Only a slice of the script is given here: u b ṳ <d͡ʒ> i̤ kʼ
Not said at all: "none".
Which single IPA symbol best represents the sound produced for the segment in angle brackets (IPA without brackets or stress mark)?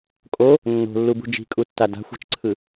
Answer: d͡ʒ